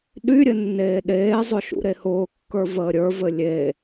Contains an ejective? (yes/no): no